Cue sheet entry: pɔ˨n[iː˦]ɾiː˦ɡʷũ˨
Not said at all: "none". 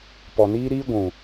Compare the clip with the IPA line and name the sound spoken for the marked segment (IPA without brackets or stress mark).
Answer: iː˦